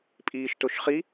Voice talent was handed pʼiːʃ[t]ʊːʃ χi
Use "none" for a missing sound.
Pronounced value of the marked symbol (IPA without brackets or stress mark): t